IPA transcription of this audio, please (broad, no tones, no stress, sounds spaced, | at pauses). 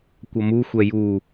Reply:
kʷ ʌ m u xʷ ɛ j u